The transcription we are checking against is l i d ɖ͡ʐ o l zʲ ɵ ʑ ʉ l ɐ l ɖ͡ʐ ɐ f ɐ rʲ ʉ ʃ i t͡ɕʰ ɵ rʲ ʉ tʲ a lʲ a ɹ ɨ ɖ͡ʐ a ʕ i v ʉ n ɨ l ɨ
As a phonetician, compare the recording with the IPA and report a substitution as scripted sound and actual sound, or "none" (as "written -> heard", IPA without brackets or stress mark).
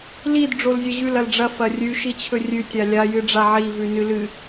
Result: ɹ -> j